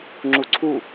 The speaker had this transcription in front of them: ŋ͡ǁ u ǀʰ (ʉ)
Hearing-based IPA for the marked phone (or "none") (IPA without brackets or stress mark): u